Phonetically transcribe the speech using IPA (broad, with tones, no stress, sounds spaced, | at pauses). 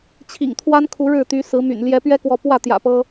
t͡ɕʰ ḭ˨˩ ŋ t̪ʰ w a˦ n kʰ u˨˦ ɻ ɻ̩˥˨ t̪ y˨˦ s ɹ̩˨˦ m y̰˨˩ n l j ɛ˨˦ p ɥ ɛ˦ k w ɔ˨˦ p w ä˥˨ t̪ j ä̰˨˩ p ɤ˦